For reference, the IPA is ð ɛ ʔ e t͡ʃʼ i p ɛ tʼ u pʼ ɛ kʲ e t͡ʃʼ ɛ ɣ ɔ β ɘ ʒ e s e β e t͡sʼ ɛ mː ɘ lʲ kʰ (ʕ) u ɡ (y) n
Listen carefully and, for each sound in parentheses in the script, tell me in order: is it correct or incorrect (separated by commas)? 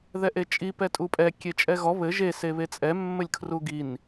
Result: incorrect, incorrect